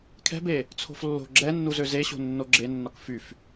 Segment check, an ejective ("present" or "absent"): absent